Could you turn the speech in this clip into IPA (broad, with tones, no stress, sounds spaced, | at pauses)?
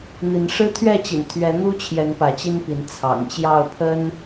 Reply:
n̪ i˨˦ n ʂ ɻ̩˦ t̪ʰ ɥ ɛ˥˨ t͡ɕ ḭ˨˩ n t̪ʰ ɥ ɛ˨˦ n̪ u˦ t͡ɕʰ j ɛ˨˦ n p ä˨˦ t͡ɕ i˦ n p i˨˦ n t͡sʰ ɑ̰˨˩ ŋ t͡ɕ j ɑ˥˨ ʊ̯ pʰ ə˦ n